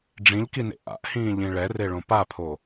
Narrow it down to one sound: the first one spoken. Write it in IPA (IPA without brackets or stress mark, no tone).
ɖ͡ʐ